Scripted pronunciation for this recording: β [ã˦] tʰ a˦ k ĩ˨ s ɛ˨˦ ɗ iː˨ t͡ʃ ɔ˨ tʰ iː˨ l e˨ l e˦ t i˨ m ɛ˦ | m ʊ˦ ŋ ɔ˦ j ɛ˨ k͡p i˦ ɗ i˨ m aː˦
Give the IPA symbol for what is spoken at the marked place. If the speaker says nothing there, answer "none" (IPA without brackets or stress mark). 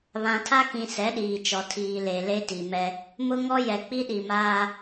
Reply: ã˨